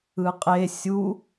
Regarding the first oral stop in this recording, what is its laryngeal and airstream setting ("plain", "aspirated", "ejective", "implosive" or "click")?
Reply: ejective